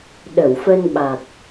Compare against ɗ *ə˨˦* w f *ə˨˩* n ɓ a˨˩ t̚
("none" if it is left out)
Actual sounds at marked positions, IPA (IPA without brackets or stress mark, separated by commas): ə˧˩, ə˧